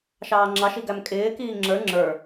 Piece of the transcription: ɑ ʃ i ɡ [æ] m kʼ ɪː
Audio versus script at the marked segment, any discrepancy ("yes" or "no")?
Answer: no